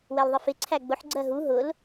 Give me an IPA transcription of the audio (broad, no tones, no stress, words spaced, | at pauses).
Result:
wɛlðˤɪfɪ ǀʰæɡ͡bʊħ ɡ͡ǀɜɦu ɦʊl